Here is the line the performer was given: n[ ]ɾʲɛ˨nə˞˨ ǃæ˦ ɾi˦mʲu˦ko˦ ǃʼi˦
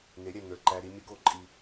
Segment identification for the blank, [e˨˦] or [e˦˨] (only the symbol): e˨˦